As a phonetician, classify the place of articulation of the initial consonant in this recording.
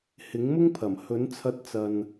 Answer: glottal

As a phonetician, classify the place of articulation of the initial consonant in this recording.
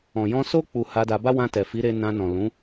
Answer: palatal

